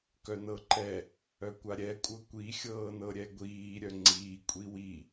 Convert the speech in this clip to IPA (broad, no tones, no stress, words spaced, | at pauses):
kœnɤǃɛ | œkʷaɾʲɛ kʷʼɤkʷi xʲɤːnɤɾʲɛɡʷiː ɾʲœŋ͡ǀiː kʷʼiwi